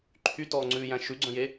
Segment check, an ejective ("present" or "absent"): absent